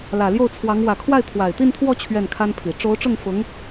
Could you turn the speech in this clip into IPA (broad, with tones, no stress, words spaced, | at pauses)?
lä˨˩ljo˥˩ʊ̯t͡sʰwɑ˧˥ŋ wä˨˩kʰwa˥˩ɪ̯ t̪ʰwa˨˩ɪ̯t̪i˥˧nt̪ʰwɔ˥˧ t͡ɕʰɥɛ˥˩nkʰa˥npʰi˨˩ ʈ͡ʂo˧˥ʊ̯ʈ͡ʂʊ˥˩ŋfʊ˧˥ŋ